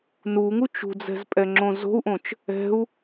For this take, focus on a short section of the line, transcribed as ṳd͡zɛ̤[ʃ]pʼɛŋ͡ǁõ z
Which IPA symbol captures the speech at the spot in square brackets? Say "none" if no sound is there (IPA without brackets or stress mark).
z